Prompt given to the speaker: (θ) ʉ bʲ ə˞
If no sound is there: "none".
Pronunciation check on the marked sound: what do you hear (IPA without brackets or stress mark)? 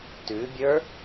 t